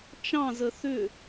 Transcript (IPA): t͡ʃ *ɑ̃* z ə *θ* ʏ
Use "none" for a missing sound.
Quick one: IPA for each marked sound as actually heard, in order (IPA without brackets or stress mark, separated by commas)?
ɑ̃, θ